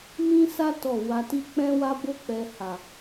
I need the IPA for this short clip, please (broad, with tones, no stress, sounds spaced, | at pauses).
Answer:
m ĩ˦ s a˦ t ɔ˦˨ w a˧ t i˦ k͡p ɛ̃˦ w a˦ b o˦ k͡p ɛ˧ h a˨